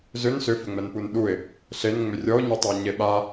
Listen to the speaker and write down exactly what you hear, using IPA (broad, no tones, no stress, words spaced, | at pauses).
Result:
zʏn sʏfʏŋ͡mɛnpun ɗuɪ̯ | ɬenŋ͡mʏ rʲɔʊ̯ɲɛtˤɛʊ̯ɲe ɓa